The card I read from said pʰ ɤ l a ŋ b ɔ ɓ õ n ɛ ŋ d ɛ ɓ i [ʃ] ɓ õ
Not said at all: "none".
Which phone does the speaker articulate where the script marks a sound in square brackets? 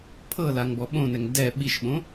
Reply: ʃ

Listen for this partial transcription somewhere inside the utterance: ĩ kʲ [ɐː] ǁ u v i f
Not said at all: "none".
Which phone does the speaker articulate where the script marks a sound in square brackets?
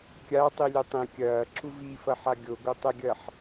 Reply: ɐː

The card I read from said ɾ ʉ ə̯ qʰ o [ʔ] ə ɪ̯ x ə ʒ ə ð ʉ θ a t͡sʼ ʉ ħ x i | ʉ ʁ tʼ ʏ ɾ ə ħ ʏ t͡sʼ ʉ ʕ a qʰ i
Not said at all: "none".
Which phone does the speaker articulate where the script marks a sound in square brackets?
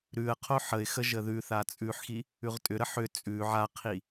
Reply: ħ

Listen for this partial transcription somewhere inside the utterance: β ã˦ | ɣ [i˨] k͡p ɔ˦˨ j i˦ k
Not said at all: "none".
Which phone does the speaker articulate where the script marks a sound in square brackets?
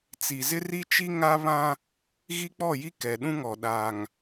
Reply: i˦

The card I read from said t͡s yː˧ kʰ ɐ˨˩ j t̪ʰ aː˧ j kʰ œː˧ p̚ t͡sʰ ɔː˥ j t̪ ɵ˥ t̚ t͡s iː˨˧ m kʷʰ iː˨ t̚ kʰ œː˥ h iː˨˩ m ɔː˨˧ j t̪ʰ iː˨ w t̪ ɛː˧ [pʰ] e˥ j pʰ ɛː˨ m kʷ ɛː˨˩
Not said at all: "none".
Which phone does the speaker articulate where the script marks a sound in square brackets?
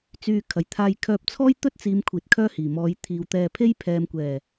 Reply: pʰ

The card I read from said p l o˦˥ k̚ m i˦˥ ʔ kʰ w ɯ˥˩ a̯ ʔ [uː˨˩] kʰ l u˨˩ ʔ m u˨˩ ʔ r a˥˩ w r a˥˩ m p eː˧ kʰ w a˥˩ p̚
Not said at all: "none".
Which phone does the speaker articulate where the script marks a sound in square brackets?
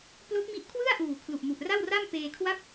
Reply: uː˨˩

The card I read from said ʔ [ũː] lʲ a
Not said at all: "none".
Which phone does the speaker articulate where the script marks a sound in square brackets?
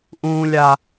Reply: ũː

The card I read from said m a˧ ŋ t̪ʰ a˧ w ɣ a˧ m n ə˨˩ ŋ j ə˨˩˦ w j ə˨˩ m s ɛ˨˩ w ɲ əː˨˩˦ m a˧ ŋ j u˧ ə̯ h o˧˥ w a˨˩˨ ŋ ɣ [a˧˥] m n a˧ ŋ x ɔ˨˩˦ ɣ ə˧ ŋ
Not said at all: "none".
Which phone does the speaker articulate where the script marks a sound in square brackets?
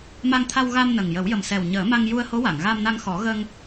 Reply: a˧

